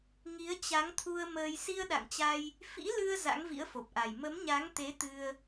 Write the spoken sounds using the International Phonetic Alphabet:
ŋ i˨˦ ə̯ t͡ɕ a˨˦ ŋ t̪ʰ u˧ ə̯ m əː˧ j s i˧ ə̯ ɗ a̰˧˨ ŋ t͡ɕ a˧ j | f ḭ˧˥ l ɨ˧ ə̯ z a̰˧˥ ŋ v ḭ˧˥ ə̯ f o˨˩ p̚ ʔ a˨˩ j m ə˨˦ m ɲ a˨˦ ŋ t̪ e˨˦ t̪ ɨ˧ ə̯

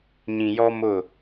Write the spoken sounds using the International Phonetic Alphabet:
ɲ ĩ˨ j ɔ˦ m ʊ˦˨

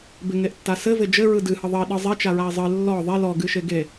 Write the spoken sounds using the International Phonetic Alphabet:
b ɪ ŋ e ʔ tː a s ɘ v ɪ d͡ʒ ɘ ɹ ɯ d ɨ h ɯ ðˤ ɘ i̯ ɗ ɯ zˤ e t͡ʃ a ɹ a i̯ zˤ ɨ lː ɔ ðˤ e l ɔ ɡ ɨ ʃ e ɡ e

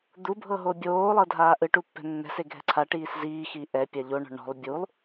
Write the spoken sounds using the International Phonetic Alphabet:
d̪ u bʱ ɤ ɦ o bʲ oː lˠ ɤ dʱ aː ʔ ɯ ʈ u pː ɛ̤ nː ɛ̤ s e ɡʱ ɛ̤ ǀʰ a ʈ iː s z iː x iː ʔ ɛ pʲ a ʎ o ɳ ɔ̤ ɳ ɔ̤ lˠ bʲ u lˠ

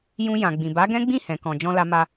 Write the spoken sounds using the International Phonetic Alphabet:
j ũ˧ j ã˨ ɡ͡b ĩ˨ b a˨˦ ɡ ɛ̃˦ ɡ͡b ĩ˦˨ h ɛ̃˨ k ɔ̃˨ d͡ʒ ɔ̃˧ l a˧ m a˧

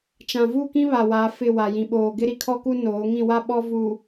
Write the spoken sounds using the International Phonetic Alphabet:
t͡ʃ ã˨ v u˦˨ k ĩ˦ β a˨ w a˨˦ f ɪ˦˨ w a˨ j ĩ˨ ɓ oː˨ ɡ ɪ˦ ɾ i˨ kʰ ɔ˦ k u˦ n oː˨˦ ŋ ĩ˦˨ w a˦ ɓ ɔ˦ v u˨

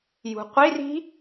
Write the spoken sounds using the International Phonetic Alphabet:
j ṳ qʷ i r i̤

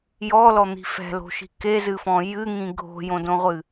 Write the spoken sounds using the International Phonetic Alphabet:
j ɔ l ɔ n̪ i̤ f ɛ̤ l o̤ ʃ i̤ k e z ɨ f ɔ̃ j ɨ ŋ ĩ ɡʱ o̤ j õ d õ ʁʷ ɨ

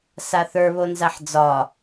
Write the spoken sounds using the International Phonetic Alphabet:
s a θ ə˞ β o n z a ħ d͡z ɒ

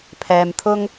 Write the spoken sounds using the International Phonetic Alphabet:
pʰ ɛː˨ m t̪ʰ ʊ˧ ŋ

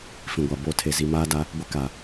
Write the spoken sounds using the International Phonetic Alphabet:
f ĩ˨ ɡʷ a˨ b o˦˨ tʰ e˨ z i˨ m aː˦ d a˦ | ɡʷ ɪ˦ k a˨

